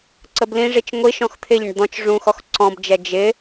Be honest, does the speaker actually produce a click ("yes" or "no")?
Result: yes